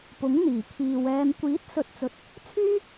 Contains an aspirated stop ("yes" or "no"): yes